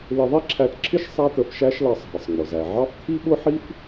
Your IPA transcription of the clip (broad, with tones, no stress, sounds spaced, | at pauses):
l ɪ˧ ðˤ i˥ ǁʰ æ˧ t ǁʰ ɪ˥ ʃ sˤ æ˥ t̪ ə˧ f ʃ æ˥ ʃ l ɑ˧ sˤ ɦ ə˩ sˤ ŋ͡m ʊ˩ z æ˩ ʕ ɑ˥ f t̪ʰ i˥ ɓ ʊ˥ ħ i˥ f